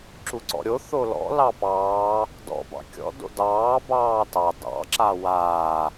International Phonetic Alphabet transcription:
ǁ u ǀ ɔ̰ ɾʲ o θ o l ɔ̰ l ɑ p ɑː | d ɔ̰ b ɑ̰ kʲ ɔ̰ d o̰ d ɑː b ɑː t ɑ d ɑ̰ ǁ a w aː

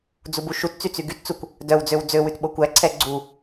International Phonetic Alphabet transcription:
d͡z u b u ʃ u t t͡s y t͡s y ɡ y t t͡s u kʷ | d œ w d͡z ø w d͡z ø w ʉ t ɓ o kʷ æ ǀʰ ɛ ɡ͡ǀ u

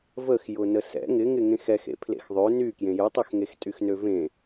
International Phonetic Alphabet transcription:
v ə x j ʊ n ə s ɛ̰ ŋ ɪ ŋ ɪ ŋ ẽ x ɛ x ḛ pʰ l ḛ x ðˤ ø n y k j ẽ j ʊ tˤ ø x ŋ e x tʼ y x n ø v ẽ

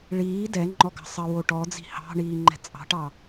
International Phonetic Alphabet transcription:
ɭ iː d ɛ ŋ͡ǃ ɔ ɡ ɑ̤ sˤ ə w o ʈ ɔ d͡z i̤ h ɑ̤ ɳ iː ŋ͡ǃ ɛ̤ t͡sʼ ɑ̤ ʈ ɑ

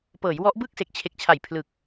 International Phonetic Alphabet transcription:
p ɤː˩˦ j w ɔ˦˥ ʔ b ɯː˥˩ k̚ s e˨˩ k̚ t͡ɕʰ e˨˩ k̚ t͡ɕʰ a˨˩ j pʰ l ɯ˨˩ k̚

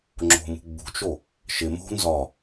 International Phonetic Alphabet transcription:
ŋ͡ǁ o̤ m ṳ ɡ͡b ṳ t͡ʃ o | ʃ ɪ m o̤ n z ɒ

